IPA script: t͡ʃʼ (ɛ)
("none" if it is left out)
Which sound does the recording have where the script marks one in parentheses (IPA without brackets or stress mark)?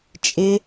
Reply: ɪ